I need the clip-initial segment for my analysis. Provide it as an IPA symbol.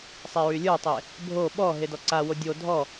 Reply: sˤ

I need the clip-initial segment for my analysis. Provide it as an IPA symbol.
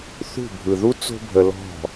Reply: θ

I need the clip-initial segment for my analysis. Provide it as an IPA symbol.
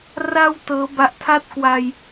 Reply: r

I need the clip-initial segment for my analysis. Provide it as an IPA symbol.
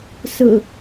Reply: s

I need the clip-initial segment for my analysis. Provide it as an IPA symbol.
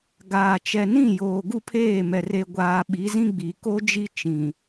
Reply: ɡ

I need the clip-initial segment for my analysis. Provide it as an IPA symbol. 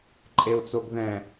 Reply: ǃʼ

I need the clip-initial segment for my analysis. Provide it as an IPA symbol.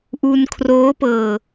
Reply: ʔ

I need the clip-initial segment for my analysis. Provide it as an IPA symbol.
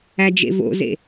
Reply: æ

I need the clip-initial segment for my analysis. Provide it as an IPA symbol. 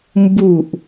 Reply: m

